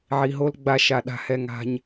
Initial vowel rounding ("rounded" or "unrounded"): unrounded